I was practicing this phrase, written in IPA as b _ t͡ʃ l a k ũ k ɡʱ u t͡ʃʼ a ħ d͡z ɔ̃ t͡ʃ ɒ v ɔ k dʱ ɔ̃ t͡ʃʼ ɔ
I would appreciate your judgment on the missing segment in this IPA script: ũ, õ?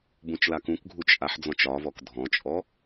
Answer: ũ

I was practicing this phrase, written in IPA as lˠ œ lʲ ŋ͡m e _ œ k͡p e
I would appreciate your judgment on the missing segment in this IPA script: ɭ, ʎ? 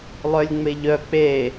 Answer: ʎ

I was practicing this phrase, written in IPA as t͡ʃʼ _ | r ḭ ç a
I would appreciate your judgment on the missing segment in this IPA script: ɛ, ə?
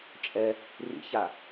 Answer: ɛ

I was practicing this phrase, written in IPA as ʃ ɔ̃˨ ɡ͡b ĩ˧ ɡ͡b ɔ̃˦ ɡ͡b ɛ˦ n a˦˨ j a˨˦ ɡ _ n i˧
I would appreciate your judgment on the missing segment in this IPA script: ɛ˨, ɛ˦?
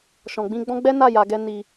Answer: ɛ˦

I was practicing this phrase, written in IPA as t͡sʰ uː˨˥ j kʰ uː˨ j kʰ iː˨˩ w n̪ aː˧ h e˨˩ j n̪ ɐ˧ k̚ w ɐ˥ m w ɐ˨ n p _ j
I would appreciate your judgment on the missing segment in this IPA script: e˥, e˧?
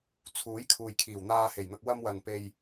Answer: e˧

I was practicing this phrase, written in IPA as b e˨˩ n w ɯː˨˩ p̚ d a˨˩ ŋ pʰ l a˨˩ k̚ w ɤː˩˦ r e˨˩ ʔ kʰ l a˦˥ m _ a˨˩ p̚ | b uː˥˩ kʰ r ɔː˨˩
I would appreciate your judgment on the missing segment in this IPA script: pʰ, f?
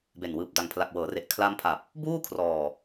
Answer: pʰ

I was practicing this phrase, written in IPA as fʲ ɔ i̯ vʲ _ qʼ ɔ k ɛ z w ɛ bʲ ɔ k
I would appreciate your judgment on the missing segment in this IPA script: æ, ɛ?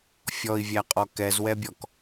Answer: æ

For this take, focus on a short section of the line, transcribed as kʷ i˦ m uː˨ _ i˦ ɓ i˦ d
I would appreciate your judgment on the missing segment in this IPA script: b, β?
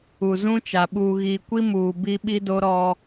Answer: b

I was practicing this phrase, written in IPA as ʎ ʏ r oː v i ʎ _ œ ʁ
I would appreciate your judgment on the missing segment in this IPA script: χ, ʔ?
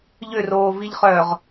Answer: χ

